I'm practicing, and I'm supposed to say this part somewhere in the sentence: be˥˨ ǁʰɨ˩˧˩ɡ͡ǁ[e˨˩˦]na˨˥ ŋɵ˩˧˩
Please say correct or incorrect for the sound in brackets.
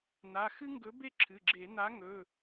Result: correct